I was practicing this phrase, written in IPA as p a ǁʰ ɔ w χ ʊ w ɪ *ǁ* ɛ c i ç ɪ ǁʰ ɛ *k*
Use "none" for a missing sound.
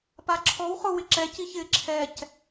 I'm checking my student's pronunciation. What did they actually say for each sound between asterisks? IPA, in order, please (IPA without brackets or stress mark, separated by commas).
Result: ǁ, c